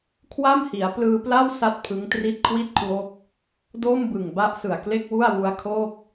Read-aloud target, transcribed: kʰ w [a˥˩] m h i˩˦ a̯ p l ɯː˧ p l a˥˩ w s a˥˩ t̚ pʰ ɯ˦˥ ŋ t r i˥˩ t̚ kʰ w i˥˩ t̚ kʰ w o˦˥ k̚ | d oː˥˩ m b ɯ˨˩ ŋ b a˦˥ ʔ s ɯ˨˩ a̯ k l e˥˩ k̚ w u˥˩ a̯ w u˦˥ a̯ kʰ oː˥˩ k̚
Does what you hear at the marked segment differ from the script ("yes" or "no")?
no